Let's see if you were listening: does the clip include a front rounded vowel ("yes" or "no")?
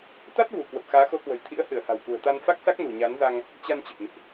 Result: no